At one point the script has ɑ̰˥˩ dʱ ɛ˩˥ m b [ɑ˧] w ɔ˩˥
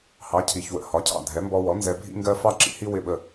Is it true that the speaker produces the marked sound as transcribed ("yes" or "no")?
no